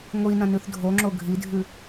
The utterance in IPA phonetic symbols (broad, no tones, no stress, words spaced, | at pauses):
ŋʷi nɐ̃nʉθdʱoŋ͡ǁo ɡʱidʱʉ